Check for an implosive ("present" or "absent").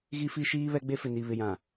absent